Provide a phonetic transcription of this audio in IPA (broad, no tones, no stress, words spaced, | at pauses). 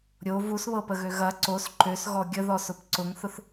ɾʲo vusβɤpəɣø ɣɐ ǀos ǃøsɣɔ ɡʲəðɔsʊp ǀʊŋθʊθ